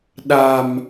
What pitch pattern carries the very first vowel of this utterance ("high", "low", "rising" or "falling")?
low